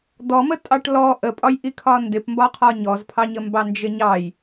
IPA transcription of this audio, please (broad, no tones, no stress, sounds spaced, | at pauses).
d̪ ɔ m ə tʼ ɑ ʈ l ɔ ʔ ə pʼ ɒ j ʔ i kʰ ɒ n d ɪ p m b ɒ qʰ ɒ ɲ ɔ z pʰ ɑ ɲ ə m b ɑ n d͡ʒ ɪ ɲ ɑ j